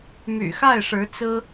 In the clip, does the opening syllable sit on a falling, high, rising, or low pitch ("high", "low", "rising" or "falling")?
low